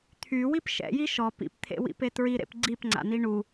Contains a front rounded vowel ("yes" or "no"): yes